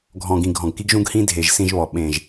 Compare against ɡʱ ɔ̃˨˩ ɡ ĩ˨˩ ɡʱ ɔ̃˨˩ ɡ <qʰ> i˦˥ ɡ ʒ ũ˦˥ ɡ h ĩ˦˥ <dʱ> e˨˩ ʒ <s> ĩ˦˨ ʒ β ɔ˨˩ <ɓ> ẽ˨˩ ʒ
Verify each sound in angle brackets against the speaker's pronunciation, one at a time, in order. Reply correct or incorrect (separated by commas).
incorrect, correct, correct, correct